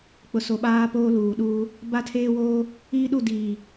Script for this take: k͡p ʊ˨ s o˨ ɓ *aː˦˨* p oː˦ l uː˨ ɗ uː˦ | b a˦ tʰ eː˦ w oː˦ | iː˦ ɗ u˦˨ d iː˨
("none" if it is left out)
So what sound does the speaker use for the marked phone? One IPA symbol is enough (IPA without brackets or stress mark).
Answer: aː˦